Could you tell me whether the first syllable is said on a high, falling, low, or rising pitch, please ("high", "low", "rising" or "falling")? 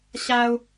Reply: high